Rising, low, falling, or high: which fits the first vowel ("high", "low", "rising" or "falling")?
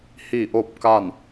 falling